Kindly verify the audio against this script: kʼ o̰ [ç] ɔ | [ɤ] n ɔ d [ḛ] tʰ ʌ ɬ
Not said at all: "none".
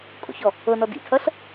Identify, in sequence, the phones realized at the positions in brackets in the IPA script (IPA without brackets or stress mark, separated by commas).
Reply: ç, ɤ, ḭ